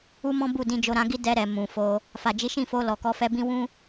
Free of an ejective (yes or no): yes